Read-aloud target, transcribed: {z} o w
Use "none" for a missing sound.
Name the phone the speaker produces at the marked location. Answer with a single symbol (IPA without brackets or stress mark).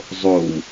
zˤ